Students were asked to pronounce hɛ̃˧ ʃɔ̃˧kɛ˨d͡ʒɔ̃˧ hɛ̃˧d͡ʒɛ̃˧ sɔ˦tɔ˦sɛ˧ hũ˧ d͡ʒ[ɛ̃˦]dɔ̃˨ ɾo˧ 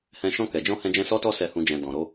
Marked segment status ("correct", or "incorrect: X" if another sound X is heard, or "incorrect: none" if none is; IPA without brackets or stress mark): incorrect: ɛ̃˨